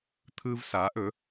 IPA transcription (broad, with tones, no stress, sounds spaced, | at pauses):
t̪ʰ ɯ˦ v s a˨˥ ʔ ɵ˨˥